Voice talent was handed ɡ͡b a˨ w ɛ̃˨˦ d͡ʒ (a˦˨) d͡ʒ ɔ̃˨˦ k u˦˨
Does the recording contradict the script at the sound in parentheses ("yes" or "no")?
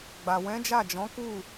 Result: no